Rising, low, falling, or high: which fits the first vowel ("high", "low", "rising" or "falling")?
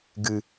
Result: low